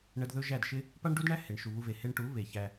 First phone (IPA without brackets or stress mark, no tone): ɳ